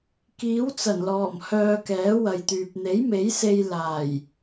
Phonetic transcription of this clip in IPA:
k iː˨˥ w t͡s ɐ˨˩ n l ɔː˨˩ m h œː˧ k ɛː˨˥ w ɐ˨ j t̪ yː˨ p̚ n̪ e˨˥ j m e˨˥ j s e˧ j l aː˨˩ j

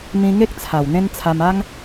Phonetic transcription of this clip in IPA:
m ĩ˧ ŋ e˦ k̚ t͡sʰ a˨˩ w n̪ ẽ˦ n t͡sʰ a˧ m a˦ ŋ

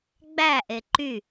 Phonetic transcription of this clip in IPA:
ɡ͡b æ ʔ e ǃ y

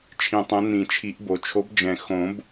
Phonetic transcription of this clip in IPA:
t͡ʃʰ ĩ˨˩˦ tˤ ɛ̃˨˥ n ĩ˨˩˦ t͡ʃʰ i˨˩˦ ʔ b o˨˩ t͡ʃʰ o˨˥ b d͡ʒ ɛ̃˨˩ x õ˨˩˦ b

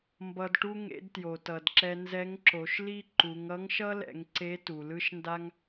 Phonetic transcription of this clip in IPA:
m b ʌ˧ d ʈ u˥ ŋ ḛ˧˥ d t j o˩ t ʌ˩ d ǁ ɛ˧ n z ɛ˧˥ ŋ ǁ o˩˧ ʃ l i˥ ǃ u˩˧ ŋ ʌ˧˥ ŋ ʃ ʌ˥ l ɛ̰˩˧ ŋ ǀ e˧˥ t u˩ l ɯ˥ ʃ n d a˥ ŋ

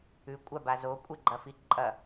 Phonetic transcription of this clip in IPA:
ʉ kʷʼ a b a z o kʷʼ e ɡ͡ǃ ɐ f i ǃʼ ɐ

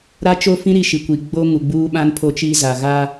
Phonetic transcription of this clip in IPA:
ɾ a˦ t͡ʃ o˦ f ĩ˦ ɾ i˦ ʃ i˨ kʷ i˨ ɡ͡b o˦ ŋ u˨ ɡ͡b uː˦ ɓ ã˦ n pʰ o˦ t͡ʃ i˦ z a˨ ɣ aː˦

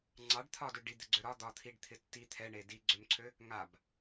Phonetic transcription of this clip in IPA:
ŋ͡ǀ ɑ ɖ t̪ʰ ɒ d ø ɖ i d̪ ɪ ɡ͡ǀ ø ɾ ɒ d̪ ɒ t̪ʰ i ɖ t̪ʰ ɪ tː i t̪ʰ ɛ ɳ e d i ɡ͡ǀ ø m ǀʰ ø | ŋ a b

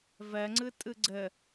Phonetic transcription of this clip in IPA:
v ɜ ŋ͡ǀ ɯ tʼ ɯ ɡ͡ǀ ə

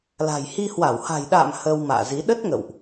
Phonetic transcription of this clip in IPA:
l a̤˨˩ j h i˧ h w a˧˩ w h a̤˨˩ j ɗ a̰ː˧˨ m h əː˧ w m a̰ː˧˨ z i˨˦ ɗ ə˦˥ t̚ ŋ ə̰˧˨ w ʔ

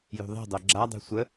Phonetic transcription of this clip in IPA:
j ṳ ðˤ e̤ dˤ œ ɡ͡ǁ a dˤ e̤ sʷ ə

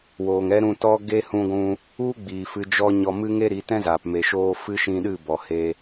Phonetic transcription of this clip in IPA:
w oː˨ ŋ ɛ˦ ɾ ũ˧ t ɔ˦ ɡ e˦ h ũ˧ ɡʷ ũ˧ | u˦ ɡ͡b iː˨ f ɨ˧ d͡ʒ ɔ˦ ɲ ɔ˧ m ɨ˦ ŋ e˦ ɾ i˨˦ t ɛ̃˦ z aː˨ p m e˨ ʃ oː˧ f ɨ˦ ʃ ĩ˧ ɗ ɨ˦˨ b ɔ˨ h e˧

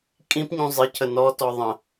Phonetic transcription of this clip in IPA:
kʼ ĩ p ɲ ũ zˤ ɪ cʰ ə n ɔ t ɔ ðˤ ə̃

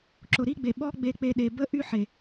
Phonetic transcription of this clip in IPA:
ǁ ʊ˨ ɾ i˦ ɡ͡b e˨ ɓ ɔ˦ ɡ͡b e˧ k͡p e˧ ɗ e˨ b ə˦ ʔ y˦ ħ e˨

